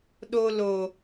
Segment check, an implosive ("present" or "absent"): present